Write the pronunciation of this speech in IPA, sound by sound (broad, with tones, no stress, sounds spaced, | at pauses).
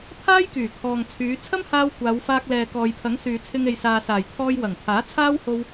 t̪ʰ aː˥ j k yː˨˩ kʰ ɔː˨ ŋ t͡sʰ yː˨˧ t͡sʰ ɐ˥ m h aː˧ w kʷ aː˨˧ w f aː˧ k̚ l ɛː˨ k ɔː˨ j pʰ ɐ˨˥ ŋ s yː˨ t͡sʰ ɪ˧ ŋ e˨ j s aː˨ s aː˨˩ j t̪ʰ ɔː˧ j w ɐ˨˩ ŋ t̪ʰ aː˨˥ t͡sʰ aː˥ w h o˧ w